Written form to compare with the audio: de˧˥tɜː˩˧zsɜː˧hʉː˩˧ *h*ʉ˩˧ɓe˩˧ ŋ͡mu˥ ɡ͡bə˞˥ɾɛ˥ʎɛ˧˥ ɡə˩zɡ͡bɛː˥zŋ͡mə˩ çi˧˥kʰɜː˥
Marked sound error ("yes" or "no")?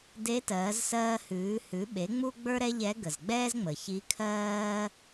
no